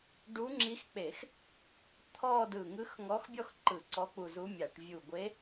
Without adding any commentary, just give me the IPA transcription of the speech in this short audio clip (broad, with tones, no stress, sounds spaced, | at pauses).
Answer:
ɖ u˧˥ ŋ͡ǁ i˧˥ x k͡p e˧˩˧ x | t̪ʰ ɔ˥˧ d ɯ˧˩ ŋ ɯ˧˥ x ŋ ɔ˧˥ x bʲ ɔ˥˧ x ǃ ɯ˧˩˧ ǀ ɔ˧˥ k͡p u˧˩ z u˧˥ mʲ a˧˩˧ ʈ vʲ u˧˩ ɡʷ e˧˥